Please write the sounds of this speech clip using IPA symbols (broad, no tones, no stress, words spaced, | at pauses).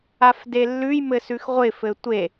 afdelːʉj mɘsʉxʁʷɪ fɘtʷe